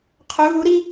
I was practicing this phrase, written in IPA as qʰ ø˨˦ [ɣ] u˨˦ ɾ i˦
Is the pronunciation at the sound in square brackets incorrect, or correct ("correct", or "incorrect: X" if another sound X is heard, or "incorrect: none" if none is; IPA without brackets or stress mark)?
correct